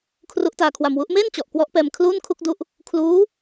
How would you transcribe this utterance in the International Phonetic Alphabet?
kʰru˦˥ʔtaː˧kʰwa˧mwu˦˥ʔ meː˥˩nt͡ɕɔ˨˩ʔ kwɔ˦˥ʔpɛː˧m kʰluː˥˩nkʰu˥˩k̚du˦˥ʔ | kʰluː˦˥

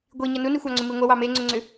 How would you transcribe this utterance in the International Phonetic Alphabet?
ɡʷiɲɐ nunixʷɑŋ͡ǀʏ miŋʷɐwɑ meŋ͡ǀʏŋ͡ǀʏ

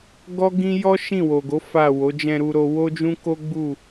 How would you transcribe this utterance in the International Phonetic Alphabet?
ɡɔ˦ɡĩ˦ jɔ˦ ʃĩ˦˨wo˨ɡo˨˦ fa˦˨wo˨˦ d͡ʒɛ̃˧ɾu˧ɾo˧ wo˦d͡ʒũ˦ko˦ɡ͡bu˦˨

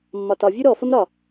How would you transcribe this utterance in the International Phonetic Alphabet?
mːɒtɒ vʲʉɾɔfəm ɾɒ

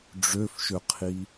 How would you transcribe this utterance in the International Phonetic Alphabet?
ɖ͡ʐøfʃøqʰi

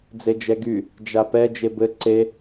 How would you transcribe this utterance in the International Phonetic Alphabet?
d͡zed͡ʒɛɡy | d͡ʒapɛ d͡ʒebɘ ǀe

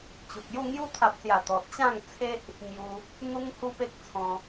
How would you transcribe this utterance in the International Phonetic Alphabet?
t͡ɕu˨k̚ju˥˧ ŋju˧t̪ʰa˨p̚sja˨˩ t̪ɔ˨t̚t͡ɕã˥˧ŋt͡sʰe˦ʔ | ŋju˧ | n̪u˦ŋhu˦pe˦k̚ t͡sʰɔ̃˧

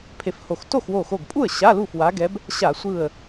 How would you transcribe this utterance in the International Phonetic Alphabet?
pʰe˧˩fho˧˩x to˥˩xwo˧˩xo˧˩ɡpʼu˥˩ə̯ ɕa˧˥˧lu˥˩fwa˨˦ɡɛ˨˦b | ɕa˧˩˧sʷɯ˧˩ə̯

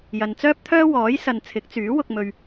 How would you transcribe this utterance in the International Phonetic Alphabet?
jɐ˨nt͡sœː˥p̚ t̪ʰœː˥wɔː˨˥jsɐ˨n t͡sʰɪ˨˥k̚t͡syː˨˥ wʊ˧k̚mɵ˧ɥ

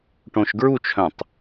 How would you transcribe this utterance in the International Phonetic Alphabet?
ʈõʃɡɹut͡ʃʰœ̃tˤ

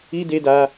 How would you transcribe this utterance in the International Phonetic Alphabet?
i˦de˦da˦

